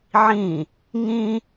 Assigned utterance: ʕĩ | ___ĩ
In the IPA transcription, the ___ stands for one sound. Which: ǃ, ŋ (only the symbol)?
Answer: ŋ